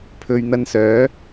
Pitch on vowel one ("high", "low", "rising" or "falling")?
low